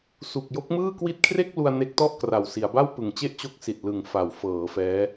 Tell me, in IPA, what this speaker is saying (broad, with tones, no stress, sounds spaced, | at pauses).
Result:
s u˨˩ k̚ j o˦˥ k̚ m ɯː˥˩ k w i˦˥ t̚ kʰ r e˥˩ k̚ l u˧ a̯ n e˦˥ k̚ t ɔ˥˩ ʔ k r a˨˩ w s i˩˦ a̯ b a˥˩ w p ɯ˨˩ ŋ t͡ɕ e˥˩ ʔ t͡ɕ o˦˥ k̚ s i˨˩ t̚ l ɯ˨˩ ŋ f a˩˦ w f ɤː˩˦ f ɛː˦˥